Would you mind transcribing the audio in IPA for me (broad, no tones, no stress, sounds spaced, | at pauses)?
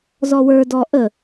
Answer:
z ɔ w ə˞ d ɔ ʔ ə